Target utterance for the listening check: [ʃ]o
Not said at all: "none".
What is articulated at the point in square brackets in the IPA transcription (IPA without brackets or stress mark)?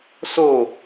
s